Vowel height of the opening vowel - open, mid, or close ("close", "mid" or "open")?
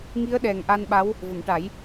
close